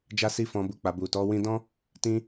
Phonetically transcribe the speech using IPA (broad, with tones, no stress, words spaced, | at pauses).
d͡ʒa˦si˦fɔ̃˧bu˧ k͡pa˨bu˨tɔ˨˦ wĩ˧dɔ̃˦ | tĩ˦